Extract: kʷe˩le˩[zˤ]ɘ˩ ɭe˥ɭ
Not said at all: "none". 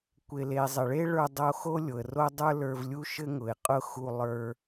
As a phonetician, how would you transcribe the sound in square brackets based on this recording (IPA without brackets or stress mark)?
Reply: zˤ